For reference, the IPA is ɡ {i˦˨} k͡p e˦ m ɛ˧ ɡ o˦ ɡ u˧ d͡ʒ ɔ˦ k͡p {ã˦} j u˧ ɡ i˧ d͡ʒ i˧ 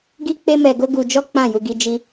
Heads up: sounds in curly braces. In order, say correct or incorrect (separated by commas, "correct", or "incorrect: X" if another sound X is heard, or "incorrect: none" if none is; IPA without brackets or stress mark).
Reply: incorrect: i˦, incorrect: ã˦˨